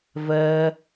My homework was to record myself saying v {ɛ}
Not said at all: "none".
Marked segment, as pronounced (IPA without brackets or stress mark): ɜ